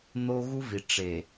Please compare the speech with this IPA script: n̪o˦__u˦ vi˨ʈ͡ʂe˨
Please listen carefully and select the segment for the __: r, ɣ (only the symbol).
ɣ